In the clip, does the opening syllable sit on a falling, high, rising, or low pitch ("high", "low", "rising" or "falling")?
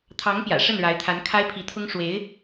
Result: rising